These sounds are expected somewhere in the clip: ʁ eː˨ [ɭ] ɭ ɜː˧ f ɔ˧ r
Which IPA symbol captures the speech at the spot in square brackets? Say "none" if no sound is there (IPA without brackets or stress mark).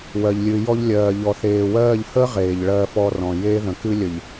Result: ʎ